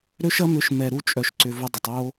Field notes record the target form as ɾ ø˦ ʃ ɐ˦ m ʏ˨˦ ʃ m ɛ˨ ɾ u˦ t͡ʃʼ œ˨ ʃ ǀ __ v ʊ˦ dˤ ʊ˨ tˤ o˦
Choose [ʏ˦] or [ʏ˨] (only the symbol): ʏ˨